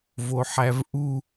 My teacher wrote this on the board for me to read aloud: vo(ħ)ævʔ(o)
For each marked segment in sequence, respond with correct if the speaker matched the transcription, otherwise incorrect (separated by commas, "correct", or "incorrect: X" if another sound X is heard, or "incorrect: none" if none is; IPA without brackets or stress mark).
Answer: correct, incorrect: u